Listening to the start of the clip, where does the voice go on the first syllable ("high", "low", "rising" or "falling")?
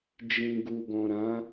low